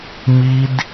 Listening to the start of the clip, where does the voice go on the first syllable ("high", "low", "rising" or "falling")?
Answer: high